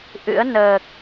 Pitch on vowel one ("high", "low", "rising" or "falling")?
rising